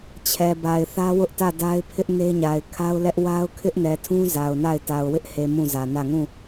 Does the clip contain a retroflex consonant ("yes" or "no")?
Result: no